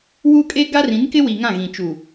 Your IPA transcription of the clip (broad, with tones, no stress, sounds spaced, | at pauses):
w uː˦ kʼ eː˦ ɡ a˦ r ĩ˨˦ n k ɪ˦ w i˨ ŋ ã˦˨ ɣ ĩ˨ t͡ʃ u˨